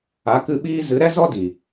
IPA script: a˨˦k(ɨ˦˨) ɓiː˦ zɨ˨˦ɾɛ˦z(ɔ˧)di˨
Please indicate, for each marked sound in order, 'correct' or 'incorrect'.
incorrect: ɨ˧, incorrect: ɔ˦

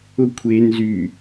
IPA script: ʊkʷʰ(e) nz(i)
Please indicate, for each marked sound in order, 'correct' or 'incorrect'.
correct, incorrect: y

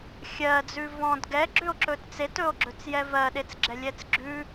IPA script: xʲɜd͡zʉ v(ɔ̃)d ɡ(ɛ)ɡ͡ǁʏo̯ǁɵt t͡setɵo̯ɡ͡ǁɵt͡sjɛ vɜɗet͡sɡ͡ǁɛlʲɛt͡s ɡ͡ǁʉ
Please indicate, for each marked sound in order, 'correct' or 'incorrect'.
correct, correct

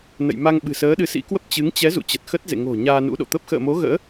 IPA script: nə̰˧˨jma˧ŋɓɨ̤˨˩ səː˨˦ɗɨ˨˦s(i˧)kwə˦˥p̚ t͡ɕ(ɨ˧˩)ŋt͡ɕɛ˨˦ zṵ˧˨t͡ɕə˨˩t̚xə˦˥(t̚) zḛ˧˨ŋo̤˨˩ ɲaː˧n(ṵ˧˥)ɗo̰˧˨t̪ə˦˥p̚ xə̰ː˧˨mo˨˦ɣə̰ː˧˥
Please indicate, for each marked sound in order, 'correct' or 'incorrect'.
incorrect: ḭ˧˥, incorrect: ɨ˨˦, correct, correct

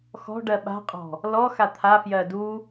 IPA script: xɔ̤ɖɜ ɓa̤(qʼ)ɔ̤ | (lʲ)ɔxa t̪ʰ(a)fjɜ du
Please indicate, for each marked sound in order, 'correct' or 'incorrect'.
correct, incorrect: l, correct

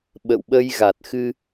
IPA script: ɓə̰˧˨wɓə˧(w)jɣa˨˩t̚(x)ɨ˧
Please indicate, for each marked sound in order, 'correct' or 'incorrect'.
incorrect: none, correct

